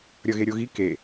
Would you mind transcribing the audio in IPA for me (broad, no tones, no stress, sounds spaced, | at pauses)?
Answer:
ɾʲ ʌ ɣ e ɾʲ o ɣ i k e